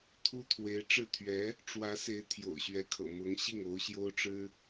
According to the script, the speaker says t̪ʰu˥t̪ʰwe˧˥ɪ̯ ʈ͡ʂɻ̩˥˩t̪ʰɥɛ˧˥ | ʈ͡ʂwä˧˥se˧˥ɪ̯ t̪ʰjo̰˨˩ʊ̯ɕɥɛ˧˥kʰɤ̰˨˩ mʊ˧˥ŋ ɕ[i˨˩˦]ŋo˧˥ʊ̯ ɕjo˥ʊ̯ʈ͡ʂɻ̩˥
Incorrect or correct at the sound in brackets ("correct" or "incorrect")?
incorrect